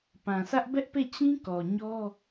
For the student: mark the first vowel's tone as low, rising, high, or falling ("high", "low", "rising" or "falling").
low